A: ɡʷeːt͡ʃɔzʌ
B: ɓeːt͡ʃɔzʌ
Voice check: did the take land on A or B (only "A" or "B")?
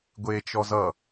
A